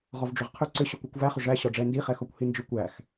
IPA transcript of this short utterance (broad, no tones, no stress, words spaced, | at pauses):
ʁɔvɖ͡ʐʏʁqʰʏ ǀʏɕʏkʷɘkʷ væχʏ ʐæ ɕɔɖ͡ʐɛ ndiχɛxɔkʷ hind͡ʒʏ kʷæx